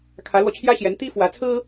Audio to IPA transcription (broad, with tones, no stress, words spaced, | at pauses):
kʰä˧˥lwɔ˧t͡ɕʰjä˥ɕjɛ˧˥n t̪i˥fwä˧˥t͡sʰɹ̩˥